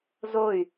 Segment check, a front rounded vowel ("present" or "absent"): present